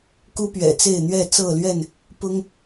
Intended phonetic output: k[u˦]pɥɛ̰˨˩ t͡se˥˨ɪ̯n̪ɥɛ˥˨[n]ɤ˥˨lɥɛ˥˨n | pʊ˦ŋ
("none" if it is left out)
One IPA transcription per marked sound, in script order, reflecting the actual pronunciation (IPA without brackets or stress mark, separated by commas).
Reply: u˦, t͡s